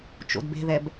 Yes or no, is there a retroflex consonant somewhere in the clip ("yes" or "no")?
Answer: no